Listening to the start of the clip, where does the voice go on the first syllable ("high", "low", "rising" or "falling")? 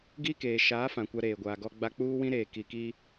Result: high